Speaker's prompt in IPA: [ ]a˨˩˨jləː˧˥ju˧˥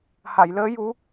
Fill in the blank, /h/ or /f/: h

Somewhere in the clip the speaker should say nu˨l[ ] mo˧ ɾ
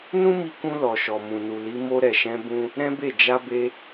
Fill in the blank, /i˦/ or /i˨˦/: i˨˦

